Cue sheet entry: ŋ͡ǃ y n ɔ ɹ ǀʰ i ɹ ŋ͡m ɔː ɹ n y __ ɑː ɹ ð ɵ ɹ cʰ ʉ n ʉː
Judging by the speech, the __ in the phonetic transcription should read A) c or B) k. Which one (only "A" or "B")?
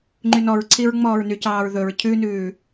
A